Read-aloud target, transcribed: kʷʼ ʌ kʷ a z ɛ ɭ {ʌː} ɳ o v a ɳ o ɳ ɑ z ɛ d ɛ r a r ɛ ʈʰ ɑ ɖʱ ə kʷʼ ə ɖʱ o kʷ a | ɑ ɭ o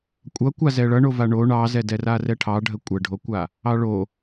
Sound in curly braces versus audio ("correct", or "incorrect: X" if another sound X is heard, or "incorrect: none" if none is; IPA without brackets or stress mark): incorrect: ʌ